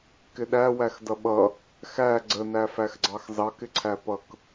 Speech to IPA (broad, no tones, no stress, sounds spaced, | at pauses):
k ɪ ɗ æ w æ x d ʌ ɓ ʌ | x æ ɡ͡ǀ ə n æ f æ x ɡ͡ǀ ɑ x z ɑ k ɪ ǀʰ æ p ʌ k